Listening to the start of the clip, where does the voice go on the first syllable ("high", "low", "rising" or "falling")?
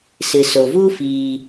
low